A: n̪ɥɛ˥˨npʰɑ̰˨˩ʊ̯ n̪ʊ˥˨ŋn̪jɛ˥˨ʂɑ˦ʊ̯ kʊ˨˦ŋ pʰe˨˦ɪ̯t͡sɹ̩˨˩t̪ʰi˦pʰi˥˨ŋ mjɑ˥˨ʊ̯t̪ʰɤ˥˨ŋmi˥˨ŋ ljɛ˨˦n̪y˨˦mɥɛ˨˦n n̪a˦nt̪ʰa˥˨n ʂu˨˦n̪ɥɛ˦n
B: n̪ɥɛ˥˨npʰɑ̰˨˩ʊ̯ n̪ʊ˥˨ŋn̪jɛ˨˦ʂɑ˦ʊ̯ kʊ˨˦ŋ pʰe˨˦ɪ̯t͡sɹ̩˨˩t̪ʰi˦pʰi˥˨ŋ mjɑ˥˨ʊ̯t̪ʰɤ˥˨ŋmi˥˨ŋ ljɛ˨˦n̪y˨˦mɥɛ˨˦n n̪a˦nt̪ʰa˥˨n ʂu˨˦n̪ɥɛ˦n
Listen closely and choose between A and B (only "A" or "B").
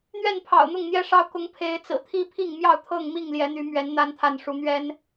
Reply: A